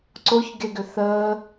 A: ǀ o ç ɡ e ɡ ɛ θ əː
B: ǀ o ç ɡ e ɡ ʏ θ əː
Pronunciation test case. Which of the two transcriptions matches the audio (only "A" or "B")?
B